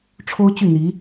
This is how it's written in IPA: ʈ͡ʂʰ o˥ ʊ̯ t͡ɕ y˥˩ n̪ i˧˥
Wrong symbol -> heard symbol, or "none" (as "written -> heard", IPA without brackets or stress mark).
none